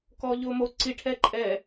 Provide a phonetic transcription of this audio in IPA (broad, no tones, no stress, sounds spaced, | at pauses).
k ɔː ʎ ʊː m o ǀ i ʈʰ ɛ ǃʼ ɛː